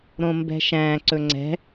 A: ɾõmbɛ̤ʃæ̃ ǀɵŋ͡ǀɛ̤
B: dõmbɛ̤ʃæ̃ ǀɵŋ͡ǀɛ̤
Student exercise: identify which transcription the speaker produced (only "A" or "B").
A